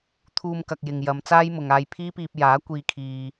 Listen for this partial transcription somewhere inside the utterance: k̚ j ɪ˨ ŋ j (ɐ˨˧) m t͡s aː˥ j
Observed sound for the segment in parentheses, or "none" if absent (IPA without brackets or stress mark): ɐ˨˧